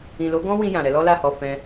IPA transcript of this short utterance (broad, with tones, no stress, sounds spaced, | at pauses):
ĩ˨ l o˨˦ ɡ ɔ̃˦ w ĩ˧ j ã˨ ɾ ɛ˨˦ l ɔ˦ l a˦˨ h ɔ˨ f ɛ̃˧